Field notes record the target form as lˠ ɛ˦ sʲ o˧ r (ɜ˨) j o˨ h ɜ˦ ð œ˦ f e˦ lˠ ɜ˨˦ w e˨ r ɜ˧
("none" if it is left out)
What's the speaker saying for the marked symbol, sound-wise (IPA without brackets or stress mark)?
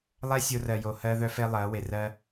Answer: ɜ˨